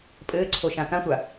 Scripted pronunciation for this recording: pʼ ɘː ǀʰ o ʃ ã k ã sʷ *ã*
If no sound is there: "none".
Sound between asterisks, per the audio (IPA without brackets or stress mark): a